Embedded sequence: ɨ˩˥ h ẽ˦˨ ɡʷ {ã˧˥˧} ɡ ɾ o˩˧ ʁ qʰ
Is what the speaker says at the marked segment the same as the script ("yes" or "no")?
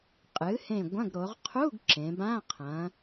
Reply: no